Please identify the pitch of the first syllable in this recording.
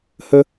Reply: high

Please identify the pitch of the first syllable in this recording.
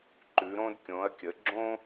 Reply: rising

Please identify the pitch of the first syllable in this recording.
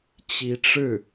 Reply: rising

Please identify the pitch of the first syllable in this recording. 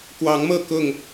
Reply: rising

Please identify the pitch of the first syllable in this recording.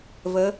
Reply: rising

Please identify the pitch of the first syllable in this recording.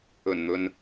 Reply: low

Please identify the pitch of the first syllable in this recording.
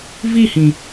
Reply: falling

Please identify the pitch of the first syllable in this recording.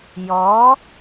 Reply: rising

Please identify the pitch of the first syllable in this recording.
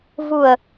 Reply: low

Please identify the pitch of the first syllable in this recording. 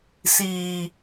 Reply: low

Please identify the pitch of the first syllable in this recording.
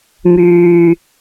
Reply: low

